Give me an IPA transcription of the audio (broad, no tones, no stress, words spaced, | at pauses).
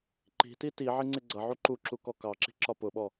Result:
ǃi̤ti tiʕɪ ŋ͡ǀɪɡ͡ǀʌʕu ǃuǁu kɔkɑǁi̤ ǁɒpʊɓɔ